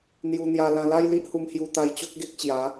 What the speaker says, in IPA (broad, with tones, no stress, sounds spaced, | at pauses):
n̪ j u˧ n̪ j a˧ l ã˧ l a˦ j l i˦ ʔ h u˧ m h j u˧ t̪ a˧ j t͡ɕ o˦ k̚ ɡ e˦ k̚ t͡ɕ j a˨˦